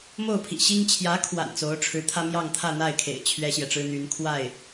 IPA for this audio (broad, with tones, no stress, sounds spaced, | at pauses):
m o˥˩ ʊ̯ pʰ ḭ˨˩ ɕ i˥ ŋ t͡ɕʰ j ä˧˥ kʰ w a̰˨˩ n t͡s o˧˥ ʊ̯ ʈ͡ʂʰ ɻ̩˧˥ t̪ʰ ä˥ m j ɑ˥˧ ŋ t̪ʰ ä˥˧ n̪ a˥˩ ɪ̯ kʰ ḛ˨˩ ɪ̯ t͡ɕʰ ɥ ɛ˥ ɕ j ɛ˨ ʈ͡ʂ ɻ̩˥ n̪ y˧˥ n kʰ w a˥˩ ɪ̯